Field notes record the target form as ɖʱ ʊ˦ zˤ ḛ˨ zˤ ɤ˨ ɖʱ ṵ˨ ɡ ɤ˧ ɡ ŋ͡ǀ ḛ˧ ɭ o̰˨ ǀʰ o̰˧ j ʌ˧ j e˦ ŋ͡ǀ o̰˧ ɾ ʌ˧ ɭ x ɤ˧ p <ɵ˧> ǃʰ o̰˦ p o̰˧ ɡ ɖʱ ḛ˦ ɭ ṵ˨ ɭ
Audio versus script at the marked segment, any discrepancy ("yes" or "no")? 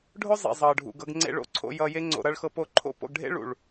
yes